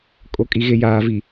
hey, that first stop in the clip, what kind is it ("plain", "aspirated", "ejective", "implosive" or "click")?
ejective